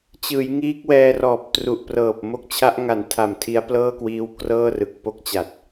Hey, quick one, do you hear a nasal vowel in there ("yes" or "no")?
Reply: no